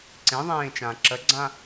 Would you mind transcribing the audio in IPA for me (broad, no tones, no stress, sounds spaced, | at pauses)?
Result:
ǀ ẽ ðˤ ẽː t͡ʃ ãː ǁ ə ɡ͡ǀ ã